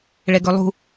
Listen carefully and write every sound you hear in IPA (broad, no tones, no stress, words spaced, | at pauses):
ɭɛɡɵlˠṳ